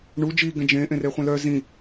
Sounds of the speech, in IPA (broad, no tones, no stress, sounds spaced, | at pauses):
ɳ u d͡ʒ i ɡ ɛ̃ d͡ʒ ẽ ʔ ẽ r e χʷ ẽ l œ z ĩ